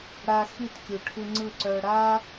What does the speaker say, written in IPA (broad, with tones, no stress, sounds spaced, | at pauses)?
ɽ a˧ x i˦˨ t kʲ u˨ ʈʰ ɯ˧ ŋ͡ǀ ɯ˦˨ ǀ œ˧ ɽ a˦